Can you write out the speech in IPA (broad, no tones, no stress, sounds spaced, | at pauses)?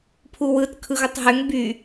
pʰ u w ɯ t kʰ ɯ ɣ u tˤ ɦ ø ŋ b y